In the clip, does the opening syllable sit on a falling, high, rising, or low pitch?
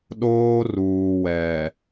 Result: high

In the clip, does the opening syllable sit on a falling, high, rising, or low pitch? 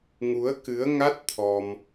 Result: rising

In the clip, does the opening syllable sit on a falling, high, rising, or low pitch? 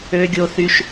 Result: low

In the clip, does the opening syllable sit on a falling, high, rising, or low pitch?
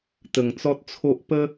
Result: low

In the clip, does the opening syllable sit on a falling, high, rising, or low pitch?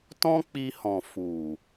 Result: high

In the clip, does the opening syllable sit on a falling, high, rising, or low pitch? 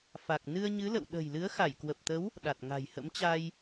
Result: low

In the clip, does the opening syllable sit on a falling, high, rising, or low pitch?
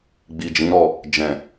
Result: low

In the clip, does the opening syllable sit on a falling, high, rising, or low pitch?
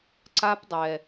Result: high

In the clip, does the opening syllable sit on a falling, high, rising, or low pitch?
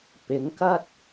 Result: rising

